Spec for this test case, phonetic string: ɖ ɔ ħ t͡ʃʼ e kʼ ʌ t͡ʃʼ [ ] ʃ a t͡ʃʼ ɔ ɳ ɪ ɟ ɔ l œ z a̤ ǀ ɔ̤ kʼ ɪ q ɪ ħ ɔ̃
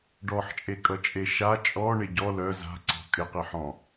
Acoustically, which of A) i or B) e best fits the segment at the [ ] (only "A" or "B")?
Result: B